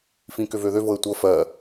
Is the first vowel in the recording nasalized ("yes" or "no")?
yes